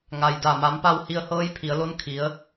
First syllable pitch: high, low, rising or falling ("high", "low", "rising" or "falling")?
low